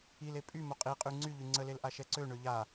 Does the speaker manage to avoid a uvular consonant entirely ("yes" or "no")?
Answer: no